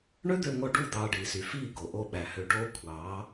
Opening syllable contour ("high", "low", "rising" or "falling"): high